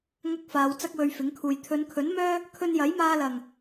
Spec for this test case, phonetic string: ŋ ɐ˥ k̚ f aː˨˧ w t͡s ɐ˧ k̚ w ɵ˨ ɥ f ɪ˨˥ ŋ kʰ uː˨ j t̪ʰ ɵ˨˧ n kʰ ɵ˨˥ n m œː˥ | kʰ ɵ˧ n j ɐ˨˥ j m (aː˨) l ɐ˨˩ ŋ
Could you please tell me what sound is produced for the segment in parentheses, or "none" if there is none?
aː˧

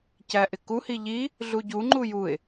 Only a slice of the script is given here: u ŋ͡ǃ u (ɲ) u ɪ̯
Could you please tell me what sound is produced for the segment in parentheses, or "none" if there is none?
j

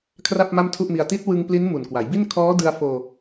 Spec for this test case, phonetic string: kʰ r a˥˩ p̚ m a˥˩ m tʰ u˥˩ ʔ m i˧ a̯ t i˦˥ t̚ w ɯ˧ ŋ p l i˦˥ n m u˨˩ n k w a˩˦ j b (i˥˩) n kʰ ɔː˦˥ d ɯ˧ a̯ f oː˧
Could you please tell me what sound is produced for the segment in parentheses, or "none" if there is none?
i˥˩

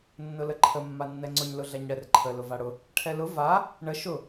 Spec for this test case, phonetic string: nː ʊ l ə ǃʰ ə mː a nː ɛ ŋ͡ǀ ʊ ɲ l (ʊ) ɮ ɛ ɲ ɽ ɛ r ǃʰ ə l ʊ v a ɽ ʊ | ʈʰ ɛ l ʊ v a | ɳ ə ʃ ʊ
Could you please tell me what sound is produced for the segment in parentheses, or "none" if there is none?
ʊ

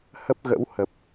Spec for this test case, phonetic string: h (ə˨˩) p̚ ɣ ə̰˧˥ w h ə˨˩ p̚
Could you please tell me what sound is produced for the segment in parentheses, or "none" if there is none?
ə˦˥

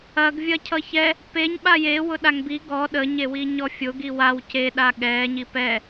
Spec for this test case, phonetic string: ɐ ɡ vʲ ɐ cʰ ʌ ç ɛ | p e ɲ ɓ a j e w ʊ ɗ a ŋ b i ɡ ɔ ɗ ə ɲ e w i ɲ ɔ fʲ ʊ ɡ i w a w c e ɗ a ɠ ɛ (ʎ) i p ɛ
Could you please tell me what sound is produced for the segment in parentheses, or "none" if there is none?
ɲ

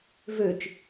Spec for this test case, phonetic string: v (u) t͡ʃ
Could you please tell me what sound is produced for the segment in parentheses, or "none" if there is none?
ø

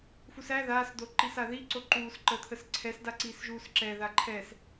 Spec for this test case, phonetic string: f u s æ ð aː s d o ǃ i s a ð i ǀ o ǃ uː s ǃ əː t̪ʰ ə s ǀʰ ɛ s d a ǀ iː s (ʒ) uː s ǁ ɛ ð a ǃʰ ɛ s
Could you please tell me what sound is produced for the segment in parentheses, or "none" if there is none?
ʒ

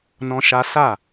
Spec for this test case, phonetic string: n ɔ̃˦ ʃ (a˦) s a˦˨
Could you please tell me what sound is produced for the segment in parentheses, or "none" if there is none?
a˦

